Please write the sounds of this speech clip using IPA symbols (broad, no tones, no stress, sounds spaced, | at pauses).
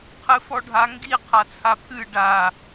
qʰ ɨ f ɔ ɖʱ a ŋ ɡ i qʰ a t͡sʰ a pʰ ɨ ɖ a